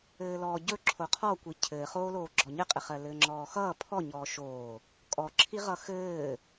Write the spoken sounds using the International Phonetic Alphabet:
ɘː l ɔː ɟ ɵ ǁʰ o qʰ ɔ kʷ i cʰ ɘː χ oː l oː ɡ͡ǁ ɔ ɲ ɘ qʼ ɘ χ ɜ l ɘː ŋ͡ǁ ɔː x ʌː pʰ ɔ ɲ ɔː ʃ oː | kʼ ɔ ǁʰ i ʁ ʌ x ɘː

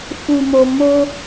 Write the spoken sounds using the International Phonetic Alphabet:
f u˨ m o˨ m o˧

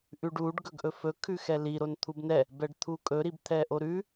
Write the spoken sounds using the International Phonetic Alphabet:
ʔ ʉ ɖ u ɖ ɡ ɵ ɡ ʔ ɵ f ɵ kʰ ʉ x ɛ l i ɾ o n t̪ʰ u b n ɛ | b ɛ ɖ t̪ʰ u kʼ ɵ ɾ i b t̪ʰ ɛ ʔ o ɾ ʉ

